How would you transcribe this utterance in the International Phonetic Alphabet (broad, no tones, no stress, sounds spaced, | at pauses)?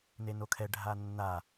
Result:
n e n o kʰ ɛ ɖʱ a nː a